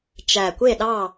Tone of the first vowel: low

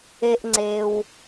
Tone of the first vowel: low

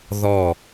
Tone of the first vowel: falling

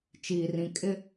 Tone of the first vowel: low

